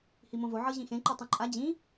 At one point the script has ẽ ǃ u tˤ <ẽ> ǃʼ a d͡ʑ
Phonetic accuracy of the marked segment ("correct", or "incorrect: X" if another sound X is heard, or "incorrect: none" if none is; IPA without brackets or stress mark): correct